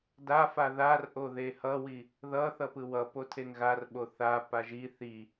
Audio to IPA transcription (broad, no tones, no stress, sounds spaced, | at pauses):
d a f a ð a r ʔ o ð e h ʌ w i | ð ʌ θ ʌ p ɯ w ʌ p o tʰ e ŋ ɣ a r ɓ o θ a p a ʒ i θ i